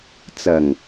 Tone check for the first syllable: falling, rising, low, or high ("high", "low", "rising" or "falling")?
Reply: low